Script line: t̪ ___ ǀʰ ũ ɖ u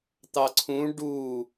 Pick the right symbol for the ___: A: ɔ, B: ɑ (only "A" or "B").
B